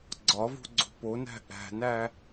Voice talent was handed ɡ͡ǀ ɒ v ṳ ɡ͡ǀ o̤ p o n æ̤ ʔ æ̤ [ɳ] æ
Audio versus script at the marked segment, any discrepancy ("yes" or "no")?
yes